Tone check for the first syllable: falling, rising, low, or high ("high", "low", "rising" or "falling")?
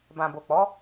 low